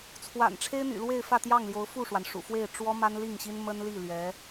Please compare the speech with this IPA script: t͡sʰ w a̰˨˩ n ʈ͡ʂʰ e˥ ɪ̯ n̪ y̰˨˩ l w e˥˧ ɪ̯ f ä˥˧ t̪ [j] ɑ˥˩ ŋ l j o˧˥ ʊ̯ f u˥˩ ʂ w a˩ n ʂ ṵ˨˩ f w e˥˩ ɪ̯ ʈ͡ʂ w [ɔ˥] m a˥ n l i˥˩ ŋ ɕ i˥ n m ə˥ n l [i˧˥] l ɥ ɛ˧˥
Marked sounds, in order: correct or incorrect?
correct, correct, incorrect: i˥˩

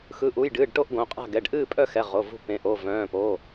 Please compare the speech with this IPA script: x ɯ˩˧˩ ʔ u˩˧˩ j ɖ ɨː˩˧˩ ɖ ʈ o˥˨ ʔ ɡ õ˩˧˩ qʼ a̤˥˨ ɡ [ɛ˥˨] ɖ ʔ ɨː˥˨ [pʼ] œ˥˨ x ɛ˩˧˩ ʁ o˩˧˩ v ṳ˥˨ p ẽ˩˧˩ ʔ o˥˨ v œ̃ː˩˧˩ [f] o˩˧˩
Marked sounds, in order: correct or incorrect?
incorrect: ɛ˩˧˩, correct, incorrect: p

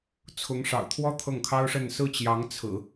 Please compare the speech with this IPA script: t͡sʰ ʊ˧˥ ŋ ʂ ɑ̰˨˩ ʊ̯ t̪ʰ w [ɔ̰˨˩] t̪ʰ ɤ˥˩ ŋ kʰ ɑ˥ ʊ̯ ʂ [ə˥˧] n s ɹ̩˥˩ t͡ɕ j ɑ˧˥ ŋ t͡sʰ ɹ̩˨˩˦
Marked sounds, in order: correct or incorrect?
incorrect: ɔ˥, correct

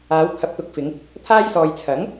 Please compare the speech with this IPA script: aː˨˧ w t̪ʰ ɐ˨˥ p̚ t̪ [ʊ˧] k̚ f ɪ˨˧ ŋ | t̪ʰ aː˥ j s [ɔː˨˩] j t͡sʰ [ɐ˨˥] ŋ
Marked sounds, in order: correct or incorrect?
incorrect: ʊ˨˥, incorrect: ɔː˧, correct

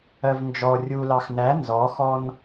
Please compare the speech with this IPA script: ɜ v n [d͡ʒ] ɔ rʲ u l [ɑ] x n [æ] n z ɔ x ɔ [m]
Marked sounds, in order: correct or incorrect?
correct, correct, correct, incorrect: n

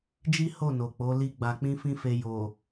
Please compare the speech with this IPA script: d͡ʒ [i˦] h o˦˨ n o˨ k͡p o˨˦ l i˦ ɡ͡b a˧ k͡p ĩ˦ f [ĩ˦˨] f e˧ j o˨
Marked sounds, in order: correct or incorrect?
correct, incorrect: ĩ˦

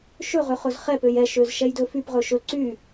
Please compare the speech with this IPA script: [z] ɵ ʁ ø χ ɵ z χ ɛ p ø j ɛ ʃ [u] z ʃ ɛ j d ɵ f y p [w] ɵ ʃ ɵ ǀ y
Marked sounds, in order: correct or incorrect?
incorrect: ʃ, incorrect: ø, incorrect: ʁ

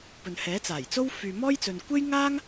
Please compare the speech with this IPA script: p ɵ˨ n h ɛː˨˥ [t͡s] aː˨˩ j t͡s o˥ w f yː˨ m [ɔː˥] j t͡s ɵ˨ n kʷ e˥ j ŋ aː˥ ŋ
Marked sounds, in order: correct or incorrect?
correct, correct

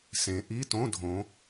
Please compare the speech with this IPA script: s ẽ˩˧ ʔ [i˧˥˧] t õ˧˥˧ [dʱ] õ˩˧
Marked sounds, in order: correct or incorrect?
correct, correct

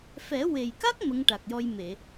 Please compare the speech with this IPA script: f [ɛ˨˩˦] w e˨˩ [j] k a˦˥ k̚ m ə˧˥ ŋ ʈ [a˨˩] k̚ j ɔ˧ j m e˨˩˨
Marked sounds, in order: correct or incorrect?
correct, correct, correct

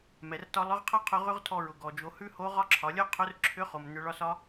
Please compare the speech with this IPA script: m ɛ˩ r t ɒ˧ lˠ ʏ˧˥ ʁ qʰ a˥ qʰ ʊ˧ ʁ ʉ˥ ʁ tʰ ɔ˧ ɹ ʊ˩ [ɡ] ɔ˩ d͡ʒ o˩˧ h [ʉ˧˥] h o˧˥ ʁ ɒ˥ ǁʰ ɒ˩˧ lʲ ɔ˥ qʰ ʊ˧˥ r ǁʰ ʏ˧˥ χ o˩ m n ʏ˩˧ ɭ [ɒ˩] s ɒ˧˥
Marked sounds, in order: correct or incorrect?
correct, incorrect: ʉ˥, incorrect: ɒ˧

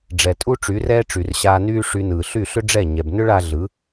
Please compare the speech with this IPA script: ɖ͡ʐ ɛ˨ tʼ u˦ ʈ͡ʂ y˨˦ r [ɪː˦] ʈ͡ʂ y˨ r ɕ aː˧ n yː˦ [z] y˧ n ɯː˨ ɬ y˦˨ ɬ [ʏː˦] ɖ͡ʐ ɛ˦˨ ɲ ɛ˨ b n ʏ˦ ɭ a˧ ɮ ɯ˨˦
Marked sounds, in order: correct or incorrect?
incorrect: ɛː˦, incorrect: ʂ, incorrect: ʏ˦

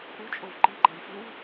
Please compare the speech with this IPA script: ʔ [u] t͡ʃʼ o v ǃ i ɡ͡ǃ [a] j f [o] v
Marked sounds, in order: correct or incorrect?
correct, correct, incorrect: u

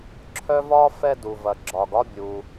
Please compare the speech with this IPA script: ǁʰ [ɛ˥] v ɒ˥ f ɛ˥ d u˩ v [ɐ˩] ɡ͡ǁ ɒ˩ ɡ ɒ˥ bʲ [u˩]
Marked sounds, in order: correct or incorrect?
incorrect: œ˥, correct, correct

